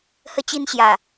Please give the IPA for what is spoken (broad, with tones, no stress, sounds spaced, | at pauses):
h ə˦ t͡ɕ i˦ n ɕ j a˨˩